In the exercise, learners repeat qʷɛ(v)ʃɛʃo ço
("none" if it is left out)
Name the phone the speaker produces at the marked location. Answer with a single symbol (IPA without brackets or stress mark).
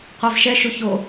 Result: v